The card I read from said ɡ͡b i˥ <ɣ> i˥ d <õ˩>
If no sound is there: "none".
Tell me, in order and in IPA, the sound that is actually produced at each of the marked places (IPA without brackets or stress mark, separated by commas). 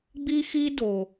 x, o˩